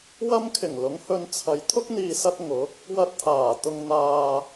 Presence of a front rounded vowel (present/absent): absent